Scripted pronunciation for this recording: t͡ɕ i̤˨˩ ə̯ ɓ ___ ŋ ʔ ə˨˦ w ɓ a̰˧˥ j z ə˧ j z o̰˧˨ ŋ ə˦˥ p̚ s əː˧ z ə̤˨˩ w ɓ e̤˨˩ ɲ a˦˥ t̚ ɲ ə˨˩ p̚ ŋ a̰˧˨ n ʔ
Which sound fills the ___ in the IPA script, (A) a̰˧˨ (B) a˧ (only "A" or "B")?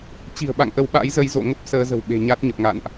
A